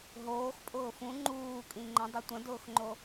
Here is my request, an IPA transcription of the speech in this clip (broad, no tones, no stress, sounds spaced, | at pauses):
ɦ oː x pʼ ʊː f ũ ŋ͡ǃ uː kʼ ĩ ŋ͡ǃ ə̃ dˤ ʏ tʷ ə̃ d ʊː x ŋ͡ǃ o